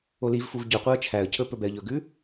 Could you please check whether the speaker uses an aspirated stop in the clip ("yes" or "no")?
yes